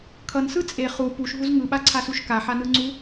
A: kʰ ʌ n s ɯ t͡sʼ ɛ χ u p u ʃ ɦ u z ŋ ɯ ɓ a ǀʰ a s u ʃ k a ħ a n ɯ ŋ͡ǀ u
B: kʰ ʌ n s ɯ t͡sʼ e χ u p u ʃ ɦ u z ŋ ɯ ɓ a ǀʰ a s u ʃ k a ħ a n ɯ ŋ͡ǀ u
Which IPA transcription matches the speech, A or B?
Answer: B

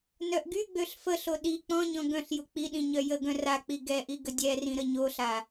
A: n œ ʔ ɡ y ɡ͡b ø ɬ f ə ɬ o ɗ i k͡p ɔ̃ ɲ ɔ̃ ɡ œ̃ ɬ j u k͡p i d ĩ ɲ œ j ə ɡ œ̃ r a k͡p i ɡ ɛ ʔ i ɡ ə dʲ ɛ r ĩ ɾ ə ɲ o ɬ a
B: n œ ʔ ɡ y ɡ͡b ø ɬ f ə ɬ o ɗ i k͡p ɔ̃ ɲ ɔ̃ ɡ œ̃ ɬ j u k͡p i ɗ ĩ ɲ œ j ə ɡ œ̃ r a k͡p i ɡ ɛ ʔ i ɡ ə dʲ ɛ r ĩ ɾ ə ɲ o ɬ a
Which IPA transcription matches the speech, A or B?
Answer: B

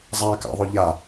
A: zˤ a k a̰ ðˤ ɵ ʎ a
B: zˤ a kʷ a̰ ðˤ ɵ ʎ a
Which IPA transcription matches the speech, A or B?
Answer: A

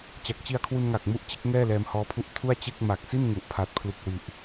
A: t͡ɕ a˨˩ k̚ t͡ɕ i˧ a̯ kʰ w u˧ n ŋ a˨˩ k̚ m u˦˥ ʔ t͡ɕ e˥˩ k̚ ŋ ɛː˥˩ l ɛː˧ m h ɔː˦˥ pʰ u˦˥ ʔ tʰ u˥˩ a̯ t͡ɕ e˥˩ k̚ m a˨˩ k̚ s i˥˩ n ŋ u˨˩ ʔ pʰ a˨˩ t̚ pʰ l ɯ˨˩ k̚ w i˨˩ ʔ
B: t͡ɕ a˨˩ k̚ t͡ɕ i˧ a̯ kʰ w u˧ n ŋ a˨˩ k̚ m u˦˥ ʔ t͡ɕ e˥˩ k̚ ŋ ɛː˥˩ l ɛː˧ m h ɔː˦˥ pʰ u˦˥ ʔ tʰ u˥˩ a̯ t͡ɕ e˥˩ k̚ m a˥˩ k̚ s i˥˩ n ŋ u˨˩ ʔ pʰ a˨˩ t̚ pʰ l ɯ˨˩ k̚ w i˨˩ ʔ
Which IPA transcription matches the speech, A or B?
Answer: A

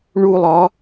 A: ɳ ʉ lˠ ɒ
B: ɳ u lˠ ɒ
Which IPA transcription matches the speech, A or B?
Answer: B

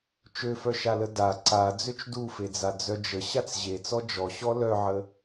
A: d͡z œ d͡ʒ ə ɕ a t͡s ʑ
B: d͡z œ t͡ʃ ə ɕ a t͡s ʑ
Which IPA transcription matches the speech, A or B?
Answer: A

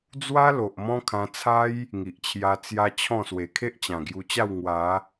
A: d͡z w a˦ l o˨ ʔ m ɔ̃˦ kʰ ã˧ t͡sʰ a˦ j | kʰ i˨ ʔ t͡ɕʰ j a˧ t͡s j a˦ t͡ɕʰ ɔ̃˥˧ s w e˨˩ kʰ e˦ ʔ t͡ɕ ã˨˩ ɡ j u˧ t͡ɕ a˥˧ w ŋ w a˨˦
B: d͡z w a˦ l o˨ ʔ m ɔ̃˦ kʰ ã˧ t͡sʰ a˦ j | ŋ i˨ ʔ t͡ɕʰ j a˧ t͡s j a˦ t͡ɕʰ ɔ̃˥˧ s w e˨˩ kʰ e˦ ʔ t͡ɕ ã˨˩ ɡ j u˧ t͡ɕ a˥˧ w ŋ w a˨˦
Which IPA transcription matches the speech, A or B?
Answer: B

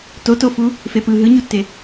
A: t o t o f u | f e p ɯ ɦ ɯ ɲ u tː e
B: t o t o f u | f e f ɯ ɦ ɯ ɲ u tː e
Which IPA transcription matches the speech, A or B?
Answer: A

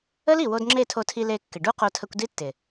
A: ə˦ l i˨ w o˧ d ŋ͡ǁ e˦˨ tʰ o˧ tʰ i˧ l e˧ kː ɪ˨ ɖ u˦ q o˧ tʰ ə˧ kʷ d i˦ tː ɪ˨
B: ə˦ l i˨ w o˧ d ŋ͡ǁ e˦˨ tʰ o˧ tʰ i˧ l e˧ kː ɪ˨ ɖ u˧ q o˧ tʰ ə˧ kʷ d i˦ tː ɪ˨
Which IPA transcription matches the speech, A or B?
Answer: A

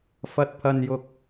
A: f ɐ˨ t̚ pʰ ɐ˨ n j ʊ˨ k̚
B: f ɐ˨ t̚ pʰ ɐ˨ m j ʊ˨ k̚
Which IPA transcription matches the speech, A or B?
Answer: A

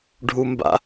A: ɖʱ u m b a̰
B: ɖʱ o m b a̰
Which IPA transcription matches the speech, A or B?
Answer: A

